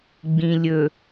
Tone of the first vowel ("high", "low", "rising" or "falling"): low